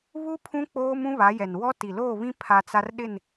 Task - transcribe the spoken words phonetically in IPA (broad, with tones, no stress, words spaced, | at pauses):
βu˦pʰũ˦ k͡poː˦mũ˦βa˨˦ jɛ˨nwɔ˦ ti˨loː˦˨βĩ˦ pʰa˦t͡sa˦rɗɪ˦˨n